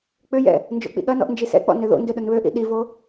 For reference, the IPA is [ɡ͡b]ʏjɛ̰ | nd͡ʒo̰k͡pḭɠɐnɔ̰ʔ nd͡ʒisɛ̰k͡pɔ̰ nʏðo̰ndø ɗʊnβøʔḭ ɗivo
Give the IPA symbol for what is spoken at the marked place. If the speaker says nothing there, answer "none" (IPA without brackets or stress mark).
k͡p